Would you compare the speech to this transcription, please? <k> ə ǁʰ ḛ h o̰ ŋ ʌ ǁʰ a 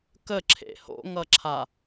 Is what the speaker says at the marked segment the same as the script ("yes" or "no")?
yes